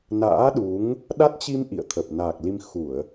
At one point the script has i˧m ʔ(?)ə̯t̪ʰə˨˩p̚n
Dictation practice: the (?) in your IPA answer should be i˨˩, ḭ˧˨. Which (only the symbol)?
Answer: ḭ˧˨